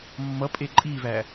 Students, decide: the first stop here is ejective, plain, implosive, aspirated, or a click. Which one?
ejective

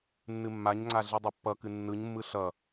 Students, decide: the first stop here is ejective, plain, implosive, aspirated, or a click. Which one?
click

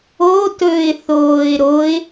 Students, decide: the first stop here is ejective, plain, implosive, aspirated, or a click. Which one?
plain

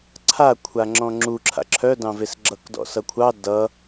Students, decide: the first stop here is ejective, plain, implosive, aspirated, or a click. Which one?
click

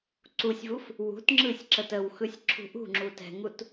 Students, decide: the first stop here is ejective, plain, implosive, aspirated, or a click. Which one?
click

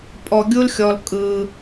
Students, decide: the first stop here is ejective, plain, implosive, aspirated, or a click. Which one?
ejective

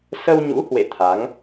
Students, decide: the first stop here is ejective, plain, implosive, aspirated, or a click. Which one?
aspirated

